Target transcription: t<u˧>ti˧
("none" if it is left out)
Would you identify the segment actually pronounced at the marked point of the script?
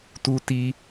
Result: u˧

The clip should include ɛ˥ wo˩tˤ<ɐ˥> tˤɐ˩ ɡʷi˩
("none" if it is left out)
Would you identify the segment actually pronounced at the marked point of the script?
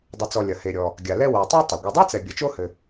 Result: a˥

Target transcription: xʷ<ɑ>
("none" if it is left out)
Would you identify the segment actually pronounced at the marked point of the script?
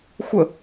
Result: ə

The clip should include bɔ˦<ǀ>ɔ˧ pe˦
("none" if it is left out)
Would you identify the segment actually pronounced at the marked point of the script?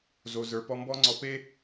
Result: ŋ͡ǀ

